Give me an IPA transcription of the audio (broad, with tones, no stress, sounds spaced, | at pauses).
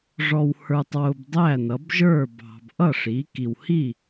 ʐ ɔ˨ w h ə˞˨ tˤ w ʊ˨ b dˤ æ˥˨ n ʌ˨˦ b ʒ ə˞˥˨ b ɑ̤˨ b ʔ ʌ˥˨ ʂ i˨˦ k i˨ w h i˥˨